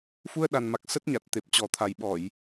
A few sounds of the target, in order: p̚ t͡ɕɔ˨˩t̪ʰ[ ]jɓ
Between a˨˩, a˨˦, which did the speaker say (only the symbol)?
a˨˩